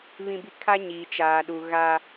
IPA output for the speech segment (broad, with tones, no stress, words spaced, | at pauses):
βĩ˦bi˦ kʰa˦ɲiː˨t͡ʃaː˨ ɗu˨ ɣa˦